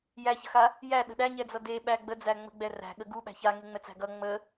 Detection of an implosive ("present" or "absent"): present